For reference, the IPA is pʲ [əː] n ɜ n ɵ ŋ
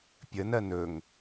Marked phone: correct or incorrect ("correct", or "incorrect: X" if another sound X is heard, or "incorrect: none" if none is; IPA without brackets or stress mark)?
incorrect: ə